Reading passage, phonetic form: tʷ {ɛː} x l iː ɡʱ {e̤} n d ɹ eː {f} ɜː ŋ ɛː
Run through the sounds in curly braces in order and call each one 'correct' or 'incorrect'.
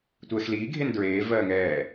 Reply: correct, incorrect, incorrect

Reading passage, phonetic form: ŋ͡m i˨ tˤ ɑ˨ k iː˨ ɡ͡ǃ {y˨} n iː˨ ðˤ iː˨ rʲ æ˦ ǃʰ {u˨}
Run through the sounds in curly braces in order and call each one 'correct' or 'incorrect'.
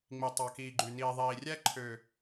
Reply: correct, incorrect

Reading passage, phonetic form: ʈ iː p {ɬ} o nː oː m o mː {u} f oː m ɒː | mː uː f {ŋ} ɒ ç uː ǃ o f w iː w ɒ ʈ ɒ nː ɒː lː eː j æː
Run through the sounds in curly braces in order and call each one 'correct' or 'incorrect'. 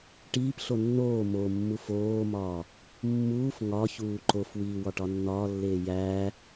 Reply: correct, correct, correct

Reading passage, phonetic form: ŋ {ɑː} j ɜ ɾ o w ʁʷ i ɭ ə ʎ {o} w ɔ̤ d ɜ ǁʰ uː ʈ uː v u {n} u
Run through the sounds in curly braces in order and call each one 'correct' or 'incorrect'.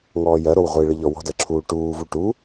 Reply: incorrect, incorrect, incorrect

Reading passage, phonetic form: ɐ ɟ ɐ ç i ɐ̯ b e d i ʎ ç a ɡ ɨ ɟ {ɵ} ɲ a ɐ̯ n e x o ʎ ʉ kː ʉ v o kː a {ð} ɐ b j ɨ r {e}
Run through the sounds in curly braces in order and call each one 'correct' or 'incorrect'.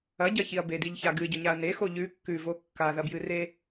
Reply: correct, correct, correct

